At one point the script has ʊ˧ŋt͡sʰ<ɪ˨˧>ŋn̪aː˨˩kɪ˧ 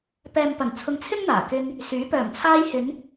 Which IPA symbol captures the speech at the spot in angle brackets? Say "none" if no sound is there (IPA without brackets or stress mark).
ɪ˥